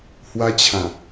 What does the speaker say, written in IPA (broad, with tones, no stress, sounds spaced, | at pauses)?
h w a˧ t͡ɕʰ ã˨˩